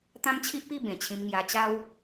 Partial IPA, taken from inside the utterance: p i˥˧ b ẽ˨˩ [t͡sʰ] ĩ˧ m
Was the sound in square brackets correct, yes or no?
no